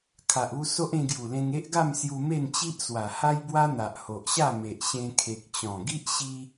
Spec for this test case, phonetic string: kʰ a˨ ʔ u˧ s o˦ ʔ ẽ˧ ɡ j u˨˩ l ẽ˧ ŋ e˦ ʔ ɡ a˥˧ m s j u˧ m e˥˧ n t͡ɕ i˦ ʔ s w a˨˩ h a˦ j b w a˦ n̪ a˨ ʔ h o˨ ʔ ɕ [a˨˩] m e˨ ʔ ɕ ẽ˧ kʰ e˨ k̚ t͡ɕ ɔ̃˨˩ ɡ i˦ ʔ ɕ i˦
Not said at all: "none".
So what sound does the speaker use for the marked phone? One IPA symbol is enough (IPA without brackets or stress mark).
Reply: a˥˧